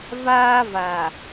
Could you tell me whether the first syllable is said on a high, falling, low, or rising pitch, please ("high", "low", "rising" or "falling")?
high